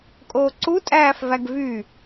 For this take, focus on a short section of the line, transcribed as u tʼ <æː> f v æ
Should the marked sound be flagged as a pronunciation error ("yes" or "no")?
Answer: no